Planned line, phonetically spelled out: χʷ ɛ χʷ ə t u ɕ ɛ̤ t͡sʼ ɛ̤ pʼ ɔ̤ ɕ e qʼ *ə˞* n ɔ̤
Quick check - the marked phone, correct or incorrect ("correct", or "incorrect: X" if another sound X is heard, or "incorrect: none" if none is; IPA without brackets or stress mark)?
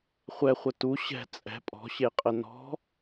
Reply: incorrect: ə